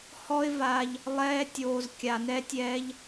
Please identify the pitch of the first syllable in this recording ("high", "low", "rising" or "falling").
high